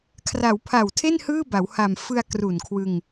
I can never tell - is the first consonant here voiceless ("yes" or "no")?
yes